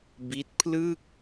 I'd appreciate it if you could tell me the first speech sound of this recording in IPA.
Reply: b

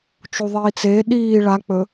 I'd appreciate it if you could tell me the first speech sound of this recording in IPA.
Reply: t͡ʃ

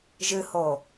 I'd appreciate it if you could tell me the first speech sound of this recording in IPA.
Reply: ʒ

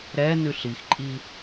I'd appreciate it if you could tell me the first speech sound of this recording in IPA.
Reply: ɾ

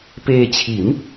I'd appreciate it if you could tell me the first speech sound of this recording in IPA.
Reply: p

